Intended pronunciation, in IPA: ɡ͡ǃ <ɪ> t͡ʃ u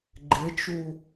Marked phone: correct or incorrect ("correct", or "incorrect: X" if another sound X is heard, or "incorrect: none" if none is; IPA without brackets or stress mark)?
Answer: correct